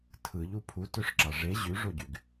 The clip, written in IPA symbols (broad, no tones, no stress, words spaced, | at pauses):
tʰɯʎu pʰutøʂǁɑ ʐe ʑyʐoɟyɡ